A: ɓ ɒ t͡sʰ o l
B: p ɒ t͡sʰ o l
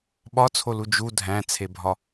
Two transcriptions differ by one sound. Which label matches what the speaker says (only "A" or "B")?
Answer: A